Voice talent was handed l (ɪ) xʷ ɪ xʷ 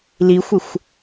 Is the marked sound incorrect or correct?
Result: incorrect